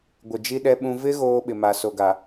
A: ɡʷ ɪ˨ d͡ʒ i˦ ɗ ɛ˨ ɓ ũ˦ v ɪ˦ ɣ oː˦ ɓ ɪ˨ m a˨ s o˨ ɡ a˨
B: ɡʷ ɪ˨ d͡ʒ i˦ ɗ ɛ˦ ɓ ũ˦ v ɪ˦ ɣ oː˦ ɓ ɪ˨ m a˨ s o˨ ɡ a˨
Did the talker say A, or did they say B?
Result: B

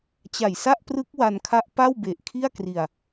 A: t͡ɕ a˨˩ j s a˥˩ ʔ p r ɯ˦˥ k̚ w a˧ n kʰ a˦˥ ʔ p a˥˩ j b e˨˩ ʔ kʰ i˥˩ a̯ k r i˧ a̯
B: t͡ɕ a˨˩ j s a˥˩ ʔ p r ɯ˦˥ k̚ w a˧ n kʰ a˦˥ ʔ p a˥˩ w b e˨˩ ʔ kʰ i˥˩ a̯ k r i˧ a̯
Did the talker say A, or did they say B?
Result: B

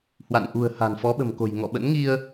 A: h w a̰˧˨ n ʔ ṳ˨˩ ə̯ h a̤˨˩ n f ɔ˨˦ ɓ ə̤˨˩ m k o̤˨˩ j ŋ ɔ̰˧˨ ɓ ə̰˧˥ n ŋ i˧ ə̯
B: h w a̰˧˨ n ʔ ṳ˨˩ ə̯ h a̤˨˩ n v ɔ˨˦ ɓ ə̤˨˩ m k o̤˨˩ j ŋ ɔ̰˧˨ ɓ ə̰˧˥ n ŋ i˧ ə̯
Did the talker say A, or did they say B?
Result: A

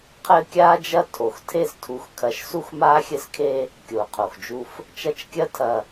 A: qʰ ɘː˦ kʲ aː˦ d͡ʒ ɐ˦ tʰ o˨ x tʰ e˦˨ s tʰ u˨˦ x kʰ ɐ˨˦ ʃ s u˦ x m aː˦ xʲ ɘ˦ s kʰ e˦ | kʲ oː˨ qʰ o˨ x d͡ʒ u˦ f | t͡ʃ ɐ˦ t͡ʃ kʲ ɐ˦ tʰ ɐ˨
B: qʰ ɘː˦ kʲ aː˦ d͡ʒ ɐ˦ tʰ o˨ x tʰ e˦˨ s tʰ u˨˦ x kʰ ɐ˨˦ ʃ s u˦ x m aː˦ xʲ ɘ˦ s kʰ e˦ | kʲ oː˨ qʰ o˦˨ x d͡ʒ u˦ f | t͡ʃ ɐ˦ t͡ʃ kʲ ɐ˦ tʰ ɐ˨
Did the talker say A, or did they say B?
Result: A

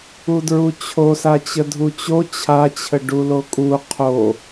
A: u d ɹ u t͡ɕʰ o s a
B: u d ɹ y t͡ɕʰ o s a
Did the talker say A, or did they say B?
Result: A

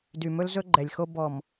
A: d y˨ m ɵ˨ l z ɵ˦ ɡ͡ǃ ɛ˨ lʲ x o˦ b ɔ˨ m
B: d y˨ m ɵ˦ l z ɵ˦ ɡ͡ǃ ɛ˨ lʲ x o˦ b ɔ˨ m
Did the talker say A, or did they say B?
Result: B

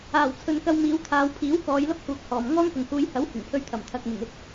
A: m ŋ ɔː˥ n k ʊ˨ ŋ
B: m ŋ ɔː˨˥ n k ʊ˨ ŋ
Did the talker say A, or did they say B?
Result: A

